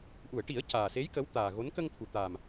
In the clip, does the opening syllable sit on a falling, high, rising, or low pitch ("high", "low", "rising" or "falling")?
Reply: low